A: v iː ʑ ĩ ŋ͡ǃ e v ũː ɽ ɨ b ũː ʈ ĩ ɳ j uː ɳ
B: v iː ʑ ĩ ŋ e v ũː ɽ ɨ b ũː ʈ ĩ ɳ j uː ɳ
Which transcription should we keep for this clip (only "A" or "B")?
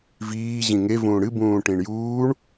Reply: B